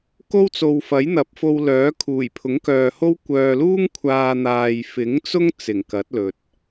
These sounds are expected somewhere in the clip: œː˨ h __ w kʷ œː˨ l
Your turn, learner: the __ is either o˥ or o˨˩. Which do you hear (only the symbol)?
o˥